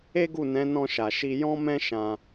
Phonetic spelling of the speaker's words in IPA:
e˦ ɡ u˦˨ n ɛ̃˨˦ n ɔ̃˧ ʃ a˨ ʃ i˧ j ɔ̃˦ m ɛ̃˦ ʃ ã˧

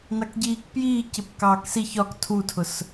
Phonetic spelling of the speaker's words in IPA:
n ɑ k ɟ iː k p j iː c ɪ p k ɑː k s i ç ɒ k tʰ u tʰ ʊ s

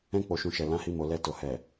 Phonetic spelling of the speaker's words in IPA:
ɛ̃˧ k͡p o˨ ʃ ũ˨ ʃ ɛ˨ l ã˨˦ h i˧ m o˨ l ɛ˧ t o˨ h ɛ˨

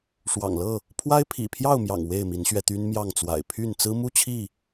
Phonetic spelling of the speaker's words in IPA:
ʂ w ɑ̰˨˩ ŋ l ɤ˥˨ | pʰ w a˦ ɪ̯ pʰ ḭ˨˩ pʰ j ɑ˥˨ ʊ̯ m j ɑ̰˨˩ ŋ w e˥˨ ɪ̯ m i˨˦ n ɕ ɥ ɛ˧ t̪ y˦ n m j ɑ˥˨ ŋ t͡s w a̰˨˩ ɪ̯ pʰ y˥˨ n t͡s ɹ̩˦ m u˥˨ t͡ɕʰ i˥˨

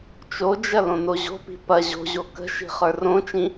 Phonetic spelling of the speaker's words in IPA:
t͡ʃ o d͡ʒ ɐ l õ n o ʑ o̤ p i̤ p ɐ ʑ o̤ ʑ o k ə̤ ʃ i̤ χ ə˞ r õ t͡ʃ ĩ

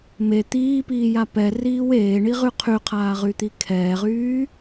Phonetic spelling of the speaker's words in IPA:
m e t̪ iː p iː j a p ɛ r iː w eː ɳ i ʁ y qʰ y qʰ aː ʁ y t̪ i kʰ ɛː ʁ yː

